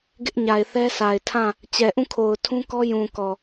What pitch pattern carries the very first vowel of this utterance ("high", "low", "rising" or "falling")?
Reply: high